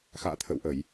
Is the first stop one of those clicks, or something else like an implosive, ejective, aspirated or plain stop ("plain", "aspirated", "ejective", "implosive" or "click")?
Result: aspirated